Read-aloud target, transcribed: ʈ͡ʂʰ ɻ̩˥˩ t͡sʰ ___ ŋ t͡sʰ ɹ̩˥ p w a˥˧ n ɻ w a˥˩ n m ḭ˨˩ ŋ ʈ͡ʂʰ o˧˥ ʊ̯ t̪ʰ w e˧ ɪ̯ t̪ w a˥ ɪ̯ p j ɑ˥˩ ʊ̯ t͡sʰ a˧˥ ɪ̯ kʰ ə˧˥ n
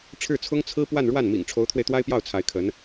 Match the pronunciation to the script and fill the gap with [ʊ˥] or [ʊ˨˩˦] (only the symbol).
ʊ˥